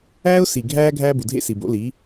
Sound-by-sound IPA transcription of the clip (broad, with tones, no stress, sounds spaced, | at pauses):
æː˦ ʊ̯ s i˨ ɡʱ æː˧ ɡʱ æː˦ b u˨ dʱ ḛ˦ s i˨ b o̰˨˦ l i˨˦